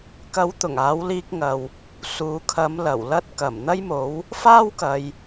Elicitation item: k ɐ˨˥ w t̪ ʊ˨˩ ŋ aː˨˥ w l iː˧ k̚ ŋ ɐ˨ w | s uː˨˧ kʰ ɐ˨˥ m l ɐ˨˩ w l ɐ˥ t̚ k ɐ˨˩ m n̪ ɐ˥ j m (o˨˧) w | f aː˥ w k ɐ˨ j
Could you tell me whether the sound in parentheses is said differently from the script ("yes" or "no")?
yes